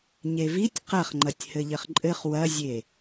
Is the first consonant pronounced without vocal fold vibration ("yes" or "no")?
no